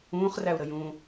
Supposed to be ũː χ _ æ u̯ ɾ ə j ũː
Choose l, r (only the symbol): r